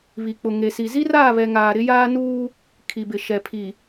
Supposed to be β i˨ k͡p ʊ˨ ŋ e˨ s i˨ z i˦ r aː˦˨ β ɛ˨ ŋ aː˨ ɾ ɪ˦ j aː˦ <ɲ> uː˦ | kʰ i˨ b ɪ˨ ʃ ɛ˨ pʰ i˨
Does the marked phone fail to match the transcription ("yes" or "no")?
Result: yes